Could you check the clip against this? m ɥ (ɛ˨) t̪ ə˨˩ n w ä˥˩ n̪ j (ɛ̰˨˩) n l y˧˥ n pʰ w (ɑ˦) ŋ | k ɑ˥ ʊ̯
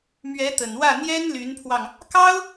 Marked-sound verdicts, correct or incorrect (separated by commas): incorrect, incorrect, incorrect